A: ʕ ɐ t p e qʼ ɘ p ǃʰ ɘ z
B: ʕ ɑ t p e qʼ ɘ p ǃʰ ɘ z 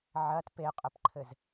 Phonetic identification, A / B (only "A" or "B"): A